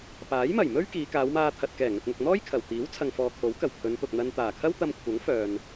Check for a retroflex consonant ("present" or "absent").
absent